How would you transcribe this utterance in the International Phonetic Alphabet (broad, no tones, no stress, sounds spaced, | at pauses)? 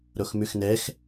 ɾ o x m ʉ x n ɛ x